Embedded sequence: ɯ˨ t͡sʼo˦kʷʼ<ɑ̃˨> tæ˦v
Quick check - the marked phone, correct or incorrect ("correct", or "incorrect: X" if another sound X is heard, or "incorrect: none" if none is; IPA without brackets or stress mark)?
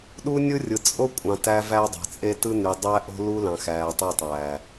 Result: correct